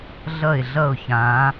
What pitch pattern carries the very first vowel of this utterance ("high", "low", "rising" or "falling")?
falling